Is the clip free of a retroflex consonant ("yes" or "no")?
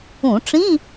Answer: no